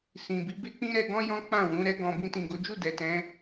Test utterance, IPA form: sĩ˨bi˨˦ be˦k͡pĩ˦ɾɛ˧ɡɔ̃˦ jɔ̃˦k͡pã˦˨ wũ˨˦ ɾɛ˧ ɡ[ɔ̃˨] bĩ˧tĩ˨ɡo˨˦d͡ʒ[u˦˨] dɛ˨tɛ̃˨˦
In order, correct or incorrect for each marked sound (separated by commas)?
correct, correct